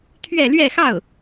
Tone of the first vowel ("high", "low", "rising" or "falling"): falling